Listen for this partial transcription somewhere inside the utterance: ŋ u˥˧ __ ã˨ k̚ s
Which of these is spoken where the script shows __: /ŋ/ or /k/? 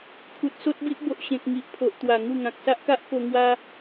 ŋ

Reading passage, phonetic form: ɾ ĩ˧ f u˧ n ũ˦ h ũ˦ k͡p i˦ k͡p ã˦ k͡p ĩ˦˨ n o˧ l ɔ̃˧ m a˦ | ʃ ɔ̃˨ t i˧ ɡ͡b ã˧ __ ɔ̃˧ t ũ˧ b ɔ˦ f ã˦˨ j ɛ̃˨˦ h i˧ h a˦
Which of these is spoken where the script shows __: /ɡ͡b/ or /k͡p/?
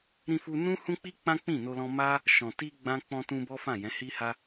k͡p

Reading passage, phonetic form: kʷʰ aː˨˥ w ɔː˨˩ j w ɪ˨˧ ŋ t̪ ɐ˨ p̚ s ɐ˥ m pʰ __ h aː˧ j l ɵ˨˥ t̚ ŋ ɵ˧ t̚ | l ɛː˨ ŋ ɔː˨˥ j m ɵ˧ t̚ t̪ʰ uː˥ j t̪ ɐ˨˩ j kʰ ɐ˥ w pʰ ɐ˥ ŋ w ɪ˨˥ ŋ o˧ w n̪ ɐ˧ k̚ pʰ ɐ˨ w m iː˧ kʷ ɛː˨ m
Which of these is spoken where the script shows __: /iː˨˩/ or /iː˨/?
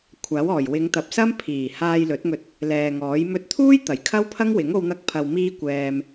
iː˨˩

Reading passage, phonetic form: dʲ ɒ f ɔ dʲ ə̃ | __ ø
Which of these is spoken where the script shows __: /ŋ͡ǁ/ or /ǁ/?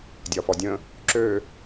ǁ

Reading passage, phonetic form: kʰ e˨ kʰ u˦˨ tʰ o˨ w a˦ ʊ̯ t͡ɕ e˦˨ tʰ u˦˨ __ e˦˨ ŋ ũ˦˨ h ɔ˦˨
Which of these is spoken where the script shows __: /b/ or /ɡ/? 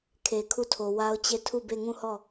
b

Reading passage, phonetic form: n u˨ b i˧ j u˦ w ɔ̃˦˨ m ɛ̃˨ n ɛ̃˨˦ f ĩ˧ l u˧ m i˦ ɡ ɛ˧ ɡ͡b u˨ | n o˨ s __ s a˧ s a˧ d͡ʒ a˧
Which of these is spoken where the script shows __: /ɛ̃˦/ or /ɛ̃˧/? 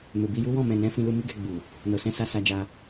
ɛ̃˧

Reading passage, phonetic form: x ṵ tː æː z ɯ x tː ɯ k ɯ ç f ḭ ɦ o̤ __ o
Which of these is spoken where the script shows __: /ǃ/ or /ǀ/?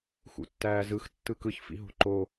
ǃ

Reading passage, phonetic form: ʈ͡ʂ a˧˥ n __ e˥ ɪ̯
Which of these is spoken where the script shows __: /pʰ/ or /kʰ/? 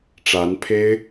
pʰ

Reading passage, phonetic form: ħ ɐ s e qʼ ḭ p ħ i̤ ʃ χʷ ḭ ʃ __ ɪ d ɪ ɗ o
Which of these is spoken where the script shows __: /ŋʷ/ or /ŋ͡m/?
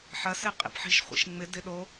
ŋ͡m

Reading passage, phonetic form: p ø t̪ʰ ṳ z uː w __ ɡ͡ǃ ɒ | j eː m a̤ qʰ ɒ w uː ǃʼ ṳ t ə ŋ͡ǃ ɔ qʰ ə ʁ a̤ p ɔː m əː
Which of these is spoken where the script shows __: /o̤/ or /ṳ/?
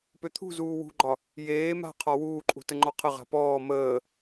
ṳ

